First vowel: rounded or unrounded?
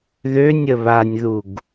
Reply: rounded